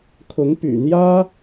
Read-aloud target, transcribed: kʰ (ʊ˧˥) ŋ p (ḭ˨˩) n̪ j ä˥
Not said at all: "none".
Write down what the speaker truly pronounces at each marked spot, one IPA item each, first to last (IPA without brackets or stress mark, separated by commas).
ʊ˧˥, y̰˨˩